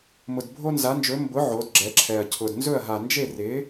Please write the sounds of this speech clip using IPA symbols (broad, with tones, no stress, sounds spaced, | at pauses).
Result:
m ʊ˨˩ d bʱ o˦ n z a˩˥ n d͡ʒ ɵ˩˥ m b ʊ˩˥ ʕ o˩˥ d ɡ͡ǁ ɛ˩˥ ǁʰ ɛ˨˩ ɐ̯ cʰ ʊ˨˩ d n z ɵ˥˩ ɐ̯ ɦ a˨˩ n d͡ʒ e˥˩ r ɪ˩˥